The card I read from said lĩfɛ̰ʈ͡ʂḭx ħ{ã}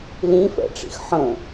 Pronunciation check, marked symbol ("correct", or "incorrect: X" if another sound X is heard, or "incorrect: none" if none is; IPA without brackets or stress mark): incorrect: ə̃